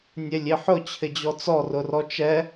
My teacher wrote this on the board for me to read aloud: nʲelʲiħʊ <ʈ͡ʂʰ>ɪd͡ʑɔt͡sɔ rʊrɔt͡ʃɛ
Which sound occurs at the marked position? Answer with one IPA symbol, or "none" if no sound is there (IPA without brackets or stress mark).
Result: t͡ɕʰ